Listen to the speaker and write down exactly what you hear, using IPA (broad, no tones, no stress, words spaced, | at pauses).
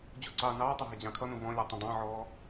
d͡ʑuǀɑːnɑːtˤɪ ɦɪd͡ʑɑ̃kʰʌnũ vɔ̃lʲu tˤũdˤɑ̃ʕɔː